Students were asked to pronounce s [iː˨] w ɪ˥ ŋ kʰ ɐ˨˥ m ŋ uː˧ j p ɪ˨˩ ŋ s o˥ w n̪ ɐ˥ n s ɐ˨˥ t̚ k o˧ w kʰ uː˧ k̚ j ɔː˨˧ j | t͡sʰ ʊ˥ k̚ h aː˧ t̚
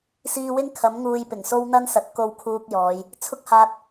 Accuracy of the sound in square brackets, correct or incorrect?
incorrect: iː˧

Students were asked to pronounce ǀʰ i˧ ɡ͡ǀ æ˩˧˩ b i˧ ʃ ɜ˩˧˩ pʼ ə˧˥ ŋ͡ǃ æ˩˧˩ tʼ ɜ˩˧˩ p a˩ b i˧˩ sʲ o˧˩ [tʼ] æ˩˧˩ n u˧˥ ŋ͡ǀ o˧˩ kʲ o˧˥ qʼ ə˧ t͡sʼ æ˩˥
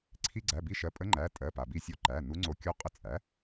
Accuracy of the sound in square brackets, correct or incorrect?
incorrect: ǃ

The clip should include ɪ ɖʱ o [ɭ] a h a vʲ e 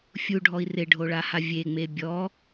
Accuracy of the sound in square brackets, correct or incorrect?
correct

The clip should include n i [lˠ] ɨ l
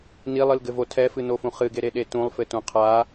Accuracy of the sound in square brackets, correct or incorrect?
correct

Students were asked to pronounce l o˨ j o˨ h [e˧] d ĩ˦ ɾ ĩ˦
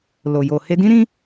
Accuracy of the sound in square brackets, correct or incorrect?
correct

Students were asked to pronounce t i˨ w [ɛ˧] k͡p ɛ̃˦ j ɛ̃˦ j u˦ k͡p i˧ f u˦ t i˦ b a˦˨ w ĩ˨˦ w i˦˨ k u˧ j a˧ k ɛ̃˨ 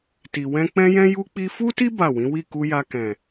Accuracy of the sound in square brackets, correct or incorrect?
incorrect: ɛ̃˧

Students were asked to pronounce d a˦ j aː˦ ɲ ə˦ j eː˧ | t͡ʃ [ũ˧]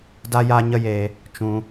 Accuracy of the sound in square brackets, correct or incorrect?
correct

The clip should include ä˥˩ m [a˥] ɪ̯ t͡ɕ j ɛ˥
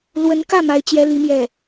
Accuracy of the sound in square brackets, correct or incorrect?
correct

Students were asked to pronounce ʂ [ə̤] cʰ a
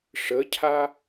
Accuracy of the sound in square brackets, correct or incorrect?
incorrect: ə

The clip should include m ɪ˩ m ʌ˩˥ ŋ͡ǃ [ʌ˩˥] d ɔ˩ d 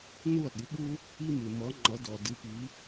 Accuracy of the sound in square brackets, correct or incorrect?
correct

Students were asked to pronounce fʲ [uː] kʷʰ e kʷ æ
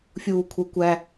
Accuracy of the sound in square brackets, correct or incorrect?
correct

